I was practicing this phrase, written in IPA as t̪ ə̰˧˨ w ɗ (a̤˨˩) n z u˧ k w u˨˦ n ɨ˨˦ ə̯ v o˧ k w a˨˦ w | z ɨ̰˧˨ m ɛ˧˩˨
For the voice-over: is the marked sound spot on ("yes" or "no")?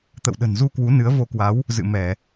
no